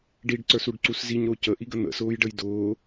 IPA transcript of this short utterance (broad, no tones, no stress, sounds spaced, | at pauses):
ɖ i ɖ ǀ ə˞ s u ɖ ǀ u s z i ɲ ɾ ʊː c ə ʔ i ɡ ə n̪ ə̰ s ʊː j ɖ ə j d ʊː